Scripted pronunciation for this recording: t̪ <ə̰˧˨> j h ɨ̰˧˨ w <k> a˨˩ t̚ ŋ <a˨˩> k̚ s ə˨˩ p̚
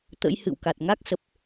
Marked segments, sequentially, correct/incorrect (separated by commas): incorrect, correct, incorrect